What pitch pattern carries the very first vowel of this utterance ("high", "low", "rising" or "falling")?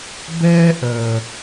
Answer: high